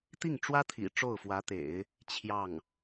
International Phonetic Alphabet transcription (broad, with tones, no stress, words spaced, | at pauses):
t̪i˥˩ŋʈ͡ʂwä˥ t̪ʰḭ˨˩ ʈ͡ʂo˥˩ʊ̯fwä˧˥t̪ḛ˨˩˦ɪ̯ | t͡ɕʰjɑ˥˩ŋ